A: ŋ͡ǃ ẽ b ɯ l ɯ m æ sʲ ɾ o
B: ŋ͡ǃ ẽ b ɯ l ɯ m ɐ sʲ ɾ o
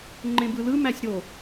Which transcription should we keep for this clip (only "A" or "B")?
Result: A